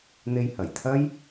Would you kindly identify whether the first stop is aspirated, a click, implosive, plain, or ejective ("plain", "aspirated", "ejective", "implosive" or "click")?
aspirated